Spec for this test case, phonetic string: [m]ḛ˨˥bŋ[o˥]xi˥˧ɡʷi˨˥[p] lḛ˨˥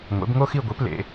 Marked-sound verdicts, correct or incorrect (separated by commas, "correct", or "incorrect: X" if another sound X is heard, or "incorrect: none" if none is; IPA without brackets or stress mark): incorrect: ŋʷ, correct, correct